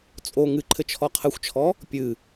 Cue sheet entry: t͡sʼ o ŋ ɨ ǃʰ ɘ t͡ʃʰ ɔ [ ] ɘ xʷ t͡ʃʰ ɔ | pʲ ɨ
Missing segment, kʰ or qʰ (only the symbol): qʰ